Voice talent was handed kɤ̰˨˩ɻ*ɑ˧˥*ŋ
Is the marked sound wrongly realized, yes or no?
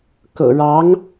no